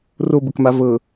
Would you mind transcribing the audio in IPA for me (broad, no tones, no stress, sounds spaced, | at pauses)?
r o b ə k m a v ɤ